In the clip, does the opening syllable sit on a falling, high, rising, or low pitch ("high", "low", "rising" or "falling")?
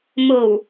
low